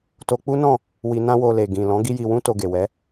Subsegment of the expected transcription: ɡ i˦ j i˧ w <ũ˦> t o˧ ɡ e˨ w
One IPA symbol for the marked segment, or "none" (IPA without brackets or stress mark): ũ˦